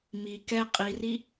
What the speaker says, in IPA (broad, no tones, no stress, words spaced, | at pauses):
mi kɛ qʼiri